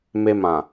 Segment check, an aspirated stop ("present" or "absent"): absent